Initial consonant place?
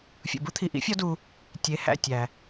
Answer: labial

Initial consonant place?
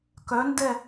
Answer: velar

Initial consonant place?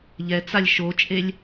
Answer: palatal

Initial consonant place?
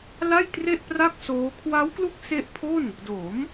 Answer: alveolar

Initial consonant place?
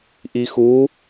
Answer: glottal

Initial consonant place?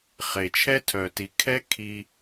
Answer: uvular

